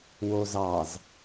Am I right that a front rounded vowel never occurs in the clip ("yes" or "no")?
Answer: yes